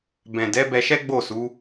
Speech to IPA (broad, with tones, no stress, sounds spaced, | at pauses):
b ɛ̃˨ d ɛ˨˦ b ɛ˧ ʃ ɛ˦ ɡ͡b o˦˨ s u˨˦